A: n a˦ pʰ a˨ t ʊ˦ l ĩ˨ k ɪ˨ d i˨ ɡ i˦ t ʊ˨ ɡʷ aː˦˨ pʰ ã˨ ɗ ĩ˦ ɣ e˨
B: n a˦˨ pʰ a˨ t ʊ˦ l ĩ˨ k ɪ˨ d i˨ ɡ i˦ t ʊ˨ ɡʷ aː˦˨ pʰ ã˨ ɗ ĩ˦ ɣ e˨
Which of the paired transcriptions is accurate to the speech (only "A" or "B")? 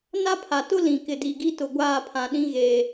A